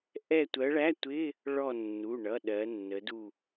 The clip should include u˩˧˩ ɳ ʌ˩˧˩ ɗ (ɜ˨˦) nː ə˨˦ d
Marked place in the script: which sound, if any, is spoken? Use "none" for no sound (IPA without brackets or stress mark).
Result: ɜ˨˦